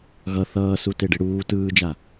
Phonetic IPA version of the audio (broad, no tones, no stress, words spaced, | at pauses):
ɣʌ θʌːsu teɖeɽuː tɯːd͡ʒa